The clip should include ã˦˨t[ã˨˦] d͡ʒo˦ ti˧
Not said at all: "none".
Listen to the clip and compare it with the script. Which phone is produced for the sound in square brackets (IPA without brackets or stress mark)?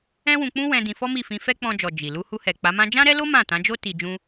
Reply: ã˨˦